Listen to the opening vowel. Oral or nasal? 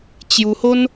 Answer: oral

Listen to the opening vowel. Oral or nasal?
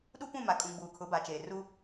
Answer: oral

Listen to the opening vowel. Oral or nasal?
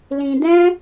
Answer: nasal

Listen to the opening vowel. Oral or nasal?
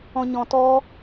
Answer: nasal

